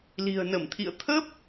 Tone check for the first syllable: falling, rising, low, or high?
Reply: low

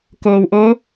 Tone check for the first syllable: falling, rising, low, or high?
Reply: low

